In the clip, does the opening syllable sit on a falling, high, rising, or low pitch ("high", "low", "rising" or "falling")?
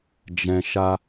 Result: low